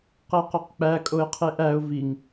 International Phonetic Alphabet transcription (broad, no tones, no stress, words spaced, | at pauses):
qæqɒqk͡pæ kʼoɪ̯qʰeʔæʊ̯ viŋ